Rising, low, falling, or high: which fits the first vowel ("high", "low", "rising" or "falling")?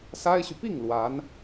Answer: high